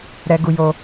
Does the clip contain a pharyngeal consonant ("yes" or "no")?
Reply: no